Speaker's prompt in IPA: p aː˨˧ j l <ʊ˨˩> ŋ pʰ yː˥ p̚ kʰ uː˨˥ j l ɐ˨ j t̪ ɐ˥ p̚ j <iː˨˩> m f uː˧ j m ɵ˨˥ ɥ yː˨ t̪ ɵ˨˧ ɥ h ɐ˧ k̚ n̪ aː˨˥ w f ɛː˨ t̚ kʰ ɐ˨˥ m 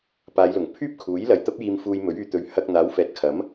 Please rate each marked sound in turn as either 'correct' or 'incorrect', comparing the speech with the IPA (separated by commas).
correct, incorrect